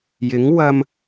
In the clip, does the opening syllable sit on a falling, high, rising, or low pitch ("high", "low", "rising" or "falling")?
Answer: rising